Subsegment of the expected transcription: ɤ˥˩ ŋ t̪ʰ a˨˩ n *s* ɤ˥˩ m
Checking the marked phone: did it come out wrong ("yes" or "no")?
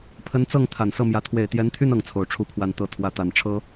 no